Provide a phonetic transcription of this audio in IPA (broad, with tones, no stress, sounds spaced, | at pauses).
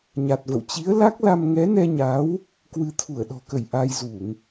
ɲ a˨˩ t̚ v ə̰˧˨ w t͡ɕ i˨˦ ə̯ l a˦˥ k̚ l a˧ m ŋ ɛ˨˦ n ɛ˧ ɲ a˨˦ w | k w ɨ˧ t̪ʰ u˧˩ ə̯ ɗ ɔ̤˨˩ k ə˧˩ j ʔ a˧ j z u˧˩˨ ŋ